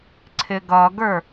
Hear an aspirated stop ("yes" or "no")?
yes